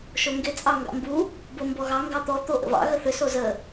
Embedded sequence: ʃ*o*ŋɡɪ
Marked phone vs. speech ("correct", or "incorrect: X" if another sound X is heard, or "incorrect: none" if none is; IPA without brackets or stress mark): correct